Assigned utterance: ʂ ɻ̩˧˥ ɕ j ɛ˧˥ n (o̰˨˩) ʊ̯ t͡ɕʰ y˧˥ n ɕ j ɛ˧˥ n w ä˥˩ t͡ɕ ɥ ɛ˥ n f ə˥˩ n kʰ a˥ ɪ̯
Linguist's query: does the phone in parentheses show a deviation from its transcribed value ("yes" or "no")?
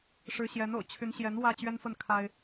no